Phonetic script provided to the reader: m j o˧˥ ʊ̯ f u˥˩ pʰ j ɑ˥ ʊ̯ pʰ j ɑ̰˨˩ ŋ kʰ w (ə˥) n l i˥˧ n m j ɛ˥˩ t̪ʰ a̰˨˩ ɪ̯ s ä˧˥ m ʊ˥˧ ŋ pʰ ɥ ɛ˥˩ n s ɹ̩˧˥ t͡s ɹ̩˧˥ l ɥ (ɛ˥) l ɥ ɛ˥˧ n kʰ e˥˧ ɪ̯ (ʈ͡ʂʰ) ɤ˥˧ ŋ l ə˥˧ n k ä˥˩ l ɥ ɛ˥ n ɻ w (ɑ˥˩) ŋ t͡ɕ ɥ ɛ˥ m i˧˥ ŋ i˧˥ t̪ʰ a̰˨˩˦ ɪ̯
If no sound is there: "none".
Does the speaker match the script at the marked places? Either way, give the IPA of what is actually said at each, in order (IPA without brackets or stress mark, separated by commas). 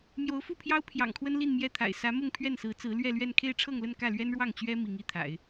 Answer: ə˥, ɛ˥˧, ʈ͡ʂʰ, ɑ˥˩